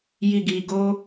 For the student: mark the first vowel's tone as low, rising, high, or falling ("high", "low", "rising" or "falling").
low